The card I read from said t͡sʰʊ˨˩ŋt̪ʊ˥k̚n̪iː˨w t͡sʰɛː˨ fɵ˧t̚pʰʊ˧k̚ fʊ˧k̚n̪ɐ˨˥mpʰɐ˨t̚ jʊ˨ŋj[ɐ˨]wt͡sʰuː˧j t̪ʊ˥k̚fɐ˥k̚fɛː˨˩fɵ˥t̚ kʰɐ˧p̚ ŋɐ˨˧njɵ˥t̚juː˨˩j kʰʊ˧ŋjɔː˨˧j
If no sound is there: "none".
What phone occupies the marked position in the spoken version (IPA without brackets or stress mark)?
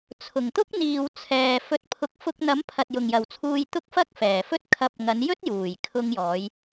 ɐ˨